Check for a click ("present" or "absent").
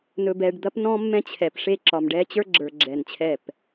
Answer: present